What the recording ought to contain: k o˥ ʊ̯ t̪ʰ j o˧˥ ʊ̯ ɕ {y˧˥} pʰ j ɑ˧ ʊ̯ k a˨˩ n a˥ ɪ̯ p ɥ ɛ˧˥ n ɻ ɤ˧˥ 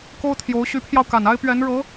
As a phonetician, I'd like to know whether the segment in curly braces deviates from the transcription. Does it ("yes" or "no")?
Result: no